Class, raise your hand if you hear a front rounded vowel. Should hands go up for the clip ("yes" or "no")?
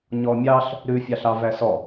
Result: no